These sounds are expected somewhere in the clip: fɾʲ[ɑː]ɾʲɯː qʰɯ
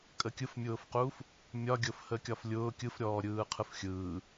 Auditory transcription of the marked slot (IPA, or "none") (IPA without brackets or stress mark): ɔː